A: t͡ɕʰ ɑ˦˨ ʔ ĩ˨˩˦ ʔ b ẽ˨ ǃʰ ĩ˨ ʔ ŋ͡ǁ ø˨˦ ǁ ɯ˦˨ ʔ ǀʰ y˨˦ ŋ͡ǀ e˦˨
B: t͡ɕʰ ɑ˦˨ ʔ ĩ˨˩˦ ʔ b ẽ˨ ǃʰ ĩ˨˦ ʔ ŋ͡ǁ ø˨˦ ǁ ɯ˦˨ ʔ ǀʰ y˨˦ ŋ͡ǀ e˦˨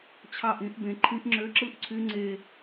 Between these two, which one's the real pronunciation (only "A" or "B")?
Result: B